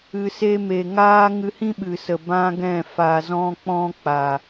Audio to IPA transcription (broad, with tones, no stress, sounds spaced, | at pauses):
ɨ˨ s e˧ m e˨ ŋ aː˦ ŋ ɨ˧ h ĩ˦ ɓ ɨ˨ s ə˨ b ã˦ ɡ ɛ̃˦˨ f a˨ z ɔ̃˧ k͡p ɔ̃˧ k͡p a˨